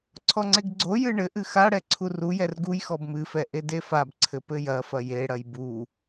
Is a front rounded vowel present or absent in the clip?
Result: absent